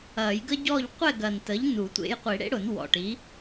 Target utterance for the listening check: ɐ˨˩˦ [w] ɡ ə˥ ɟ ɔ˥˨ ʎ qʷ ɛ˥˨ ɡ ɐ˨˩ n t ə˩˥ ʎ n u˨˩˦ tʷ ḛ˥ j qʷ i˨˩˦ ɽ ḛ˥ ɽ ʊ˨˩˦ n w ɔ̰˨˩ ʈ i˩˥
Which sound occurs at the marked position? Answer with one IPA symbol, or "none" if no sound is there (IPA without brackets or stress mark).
j